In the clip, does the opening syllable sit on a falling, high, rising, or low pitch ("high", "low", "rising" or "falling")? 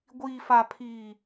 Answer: low